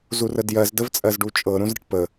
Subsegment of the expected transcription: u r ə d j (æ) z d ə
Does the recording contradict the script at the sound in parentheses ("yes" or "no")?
yes